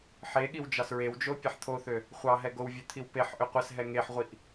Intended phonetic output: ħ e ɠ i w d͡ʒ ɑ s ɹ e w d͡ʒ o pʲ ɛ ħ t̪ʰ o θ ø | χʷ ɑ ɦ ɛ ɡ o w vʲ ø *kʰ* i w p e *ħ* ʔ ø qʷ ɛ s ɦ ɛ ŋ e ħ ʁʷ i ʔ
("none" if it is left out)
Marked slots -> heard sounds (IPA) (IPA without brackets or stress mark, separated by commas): t̪ʰ, ħ